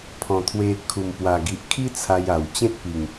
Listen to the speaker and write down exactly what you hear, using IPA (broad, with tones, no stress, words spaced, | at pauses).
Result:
pʰɔ̃˨˩t̪ʰwe˧ kʰu˨˩mpwa˨˩ɡi˨ʔ kʰi˦t͡sʰa˧ja˨˩w t͡ɕẽ˦t̚pi˨˩ŋ